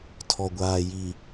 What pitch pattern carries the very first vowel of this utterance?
low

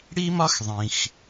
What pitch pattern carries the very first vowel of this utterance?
high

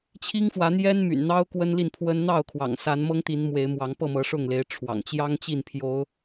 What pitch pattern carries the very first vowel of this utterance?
high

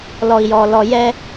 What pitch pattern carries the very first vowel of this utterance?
low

